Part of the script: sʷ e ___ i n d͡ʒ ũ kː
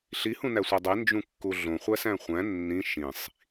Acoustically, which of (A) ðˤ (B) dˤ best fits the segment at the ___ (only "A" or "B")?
B